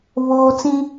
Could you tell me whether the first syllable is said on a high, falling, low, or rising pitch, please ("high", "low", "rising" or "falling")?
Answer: high